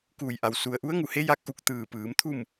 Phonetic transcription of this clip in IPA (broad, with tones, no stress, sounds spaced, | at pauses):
k uː˧˩ j ʔ a˩ w s u˩ ə̯ ʔ u˧˥ ə̯ ŋ u˧˩ h e˧˥ j a˧ k̚ ʔ u˧ k̚ t̪ ɯː˧˩ p ɯː˩˧ m t̪ʰ u˥˨ m